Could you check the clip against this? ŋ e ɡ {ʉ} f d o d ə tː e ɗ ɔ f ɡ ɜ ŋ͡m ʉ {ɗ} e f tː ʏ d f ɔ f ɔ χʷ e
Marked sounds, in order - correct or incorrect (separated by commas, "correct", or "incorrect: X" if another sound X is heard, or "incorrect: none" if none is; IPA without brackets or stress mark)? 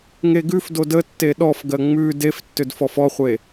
correct, incorrect: d